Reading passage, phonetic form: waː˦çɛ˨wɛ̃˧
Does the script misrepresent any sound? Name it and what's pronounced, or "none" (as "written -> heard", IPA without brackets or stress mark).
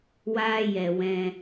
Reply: ç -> j